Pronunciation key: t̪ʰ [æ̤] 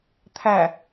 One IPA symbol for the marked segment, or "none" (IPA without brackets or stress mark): æ